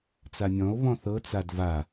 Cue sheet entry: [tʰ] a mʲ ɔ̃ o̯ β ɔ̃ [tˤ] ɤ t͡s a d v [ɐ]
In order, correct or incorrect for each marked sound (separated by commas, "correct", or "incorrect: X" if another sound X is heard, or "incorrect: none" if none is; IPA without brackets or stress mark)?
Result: incorrect: t͡s, incorrect: θ, incorrect: a